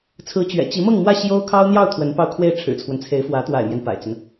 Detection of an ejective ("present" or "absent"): absent